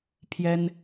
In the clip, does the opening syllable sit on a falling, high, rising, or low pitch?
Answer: high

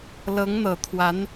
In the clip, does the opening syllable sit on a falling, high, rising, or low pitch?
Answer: rising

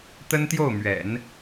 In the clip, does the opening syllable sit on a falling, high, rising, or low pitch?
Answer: high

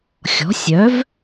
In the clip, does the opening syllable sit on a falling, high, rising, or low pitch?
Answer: rising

